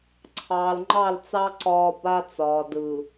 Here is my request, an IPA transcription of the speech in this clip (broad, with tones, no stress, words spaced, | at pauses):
ǀʰɑː˨lŋ͡ǃɑ˦˨lt͡sɑ˦ ǀɒː˦ ba˦t͡sɒː˨dɯ˨